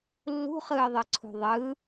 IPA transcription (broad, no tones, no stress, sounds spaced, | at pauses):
lː ṳ χ ɯː ðˤ ɯ ǀʰ ṳ ðˤ ɯ